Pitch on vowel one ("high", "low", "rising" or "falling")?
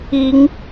rising